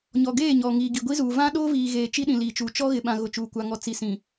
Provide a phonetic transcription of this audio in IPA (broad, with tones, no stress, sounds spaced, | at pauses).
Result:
ɲ ɔ˨ ɡ eː˦˨ ɲ ɔ˨ ŋ iː˨ ɡ i˨ ɡʷ i˦ z uː˨ v ã˦ ɗ oː˦ v iː˨ ɣ eː˨ t͡ʃ i˦ ɗ ĩ˨ l iː˨ t͡ʃ uː˨ t͡ʃ ɔ˦ ɣ ɪ˨ ɓ ã˨ ɣ ʊ˨ t͡ʃ uː˨ kʷ a˨ ŋ ɔ˨ t͡s i˨ s ĩ˨